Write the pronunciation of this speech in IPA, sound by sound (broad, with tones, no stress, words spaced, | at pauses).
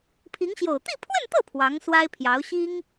pʰi˧˥ŋɕjo˨˩ʊ̯ t̪i˥˧pʰwə˥˧nt̪ɤ˥˩ pʰwɑ˧˥ŋswa˥ɪ̯pʰjɑ˧˥ʊ̯ ɕi˥ŋ